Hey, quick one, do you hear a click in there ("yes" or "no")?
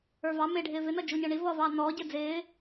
no